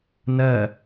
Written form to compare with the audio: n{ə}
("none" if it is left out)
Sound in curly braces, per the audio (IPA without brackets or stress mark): ɐ